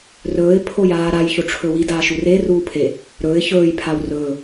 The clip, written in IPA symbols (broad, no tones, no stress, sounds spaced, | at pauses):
r ɵː ɪ̯ pʰ o j aː ɾ a j ç o ʈ͡ʂʰ ɵ w i d aː ʃ u r e r uː pʰ e | ɾ ɵː ɪ̯ ç ɵː j pʰ a w r ɵː